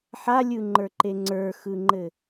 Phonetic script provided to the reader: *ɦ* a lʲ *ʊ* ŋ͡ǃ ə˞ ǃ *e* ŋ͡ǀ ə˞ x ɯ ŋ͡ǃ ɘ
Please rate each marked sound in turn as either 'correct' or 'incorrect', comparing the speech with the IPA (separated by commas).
incorrect, incorrect, correct